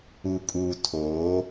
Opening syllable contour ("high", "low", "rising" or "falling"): low